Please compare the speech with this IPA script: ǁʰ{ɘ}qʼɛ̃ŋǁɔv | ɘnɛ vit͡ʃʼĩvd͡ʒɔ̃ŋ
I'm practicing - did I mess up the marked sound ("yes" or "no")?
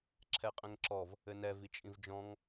yes